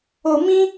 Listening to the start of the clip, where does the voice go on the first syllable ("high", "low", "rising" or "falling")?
low